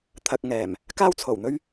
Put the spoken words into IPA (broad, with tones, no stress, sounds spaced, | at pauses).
t̪ʰ ɐ˨ k̚ ŋ ɛː˨˩ m | k aː˥ w t͡sʰ o˨˩ w n̪ ɵ˥ ɥ